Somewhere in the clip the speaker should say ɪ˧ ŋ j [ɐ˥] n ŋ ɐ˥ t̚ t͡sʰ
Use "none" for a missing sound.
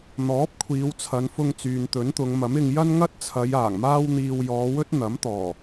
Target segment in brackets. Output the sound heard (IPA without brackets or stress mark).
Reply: ɐ˥